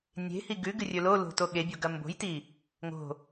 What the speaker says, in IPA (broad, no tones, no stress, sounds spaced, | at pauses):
nʲ e̤ h i ɡ ʉ ɡ ɨ rʲ ɵ l o l o̤ t o ɠ e bʲ o ɡ ɐ m b o̤ j t i | ŋ o̤